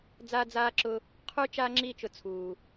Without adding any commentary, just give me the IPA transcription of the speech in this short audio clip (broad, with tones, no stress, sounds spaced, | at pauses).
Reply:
d͡z aː˦ d͡z aː˦ ǁ ʊ˧ | qʰ u˦ t͡ʃ a˦ ŋ͡ǁ i˦˨ t͡ʃ ʊ˧ t͡sʰ uː˨